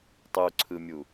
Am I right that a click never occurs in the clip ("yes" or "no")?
no